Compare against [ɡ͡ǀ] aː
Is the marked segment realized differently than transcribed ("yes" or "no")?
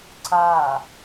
yes